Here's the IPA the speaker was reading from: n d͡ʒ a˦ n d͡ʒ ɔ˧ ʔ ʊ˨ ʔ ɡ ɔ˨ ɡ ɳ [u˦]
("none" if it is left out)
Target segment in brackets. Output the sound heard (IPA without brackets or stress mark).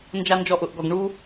u˦